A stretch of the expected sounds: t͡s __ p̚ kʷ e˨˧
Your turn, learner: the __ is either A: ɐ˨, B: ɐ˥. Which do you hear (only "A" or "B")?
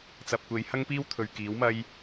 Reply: A